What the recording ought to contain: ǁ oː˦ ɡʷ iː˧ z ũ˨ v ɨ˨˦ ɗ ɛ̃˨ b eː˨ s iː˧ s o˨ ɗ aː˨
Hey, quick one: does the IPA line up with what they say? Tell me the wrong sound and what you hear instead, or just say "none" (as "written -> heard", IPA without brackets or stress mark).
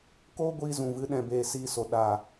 ǁ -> k